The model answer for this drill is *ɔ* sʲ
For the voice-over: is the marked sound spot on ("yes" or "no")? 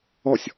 yes